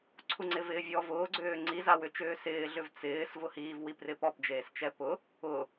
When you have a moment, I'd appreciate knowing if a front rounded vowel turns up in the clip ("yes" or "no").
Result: yes